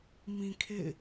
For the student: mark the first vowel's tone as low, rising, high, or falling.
low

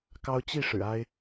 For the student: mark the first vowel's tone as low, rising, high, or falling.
high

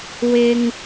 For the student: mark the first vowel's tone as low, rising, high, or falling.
low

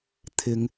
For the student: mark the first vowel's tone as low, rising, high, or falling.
low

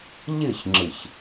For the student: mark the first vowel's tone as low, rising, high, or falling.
falling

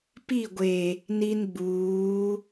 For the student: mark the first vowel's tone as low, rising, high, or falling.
falling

